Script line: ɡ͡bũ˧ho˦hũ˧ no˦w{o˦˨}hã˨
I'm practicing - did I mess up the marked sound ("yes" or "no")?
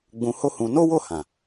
no